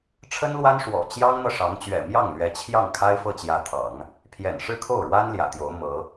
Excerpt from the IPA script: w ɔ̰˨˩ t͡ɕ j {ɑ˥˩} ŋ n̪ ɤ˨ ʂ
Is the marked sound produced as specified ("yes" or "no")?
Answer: no